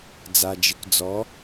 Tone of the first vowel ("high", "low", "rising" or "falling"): low